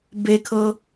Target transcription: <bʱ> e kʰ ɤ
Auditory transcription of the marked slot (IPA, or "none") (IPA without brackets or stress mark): b